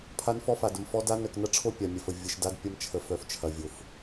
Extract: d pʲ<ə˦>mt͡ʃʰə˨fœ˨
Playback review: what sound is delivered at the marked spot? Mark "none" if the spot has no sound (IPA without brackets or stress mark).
ɐ˦